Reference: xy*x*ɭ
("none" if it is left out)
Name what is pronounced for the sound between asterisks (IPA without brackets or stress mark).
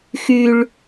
none